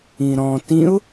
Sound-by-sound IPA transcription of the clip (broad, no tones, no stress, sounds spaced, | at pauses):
ĩ ɾ ɔ̃ t ĩ ʊ̯